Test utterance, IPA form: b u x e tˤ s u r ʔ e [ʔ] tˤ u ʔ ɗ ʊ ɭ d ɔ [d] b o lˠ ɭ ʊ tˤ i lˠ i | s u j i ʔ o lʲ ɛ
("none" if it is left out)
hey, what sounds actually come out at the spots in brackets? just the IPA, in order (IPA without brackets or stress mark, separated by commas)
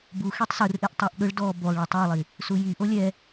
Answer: ʔ, none